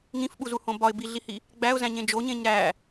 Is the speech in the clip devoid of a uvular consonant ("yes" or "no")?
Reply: yes